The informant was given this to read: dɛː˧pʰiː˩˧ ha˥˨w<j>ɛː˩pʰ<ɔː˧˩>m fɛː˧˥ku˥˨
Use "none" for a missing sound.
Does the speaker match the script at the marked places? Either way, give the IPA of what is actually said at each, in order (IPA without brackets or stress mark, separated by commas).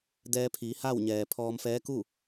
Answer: ɲ, ɔː˧